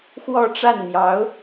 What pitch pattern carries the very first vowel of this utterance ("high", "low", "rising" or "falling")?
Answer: falling